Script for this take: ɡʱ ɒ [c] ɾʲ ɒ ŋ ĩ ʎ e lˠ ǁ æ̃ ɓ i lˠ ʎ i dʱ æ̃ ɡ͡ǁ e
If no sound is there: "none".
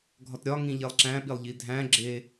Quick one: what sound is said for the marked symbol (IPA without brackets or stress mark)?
t